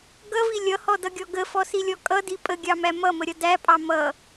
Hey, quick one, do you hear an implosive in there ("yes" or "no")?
no